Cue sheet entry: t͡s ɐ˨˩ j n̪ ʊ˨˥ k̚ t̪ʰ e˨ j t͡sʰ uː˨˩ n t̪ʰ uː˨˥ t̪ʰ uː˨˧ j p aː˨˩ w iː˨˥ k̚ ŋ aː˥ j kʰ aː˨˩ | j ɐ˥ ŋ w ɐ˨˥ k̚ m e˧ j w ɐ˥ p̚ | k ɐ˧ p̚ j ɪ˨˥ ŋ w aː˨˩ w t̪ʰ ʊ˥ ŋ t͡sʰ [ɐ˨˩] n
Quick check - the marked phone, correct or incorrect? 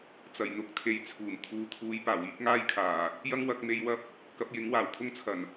correct